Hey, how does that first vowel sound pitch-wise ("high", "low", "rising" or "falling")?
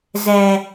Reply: low